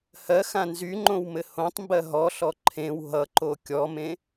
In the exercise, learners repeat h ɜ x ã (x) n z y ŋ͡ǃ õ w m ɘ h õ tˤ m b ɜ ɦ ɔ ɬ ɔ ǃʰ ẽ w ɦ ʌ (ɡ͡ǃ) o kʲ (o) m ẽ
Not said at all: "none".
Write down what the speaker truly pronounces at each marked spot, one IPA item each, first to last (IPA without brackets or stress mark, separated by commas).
none, ǃ, ɔ